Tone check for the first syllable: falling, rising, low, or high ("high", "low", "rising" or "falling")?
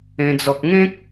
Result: high